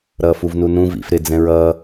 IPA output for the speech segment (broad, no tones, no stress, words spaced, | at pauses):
ɾʌːfuvnunũ vḭf ɾɪ d͡zɛ̃ɹʌː